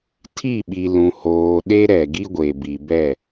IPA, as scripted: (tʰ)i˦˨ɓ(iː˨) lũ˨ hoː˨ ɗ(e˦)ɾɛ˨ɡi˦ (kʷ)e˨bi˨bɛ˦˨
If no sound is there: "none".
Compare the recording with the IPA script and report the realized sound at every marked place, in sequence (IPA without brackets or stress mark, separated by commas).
tʰ, i˨, e˦, ɡʷ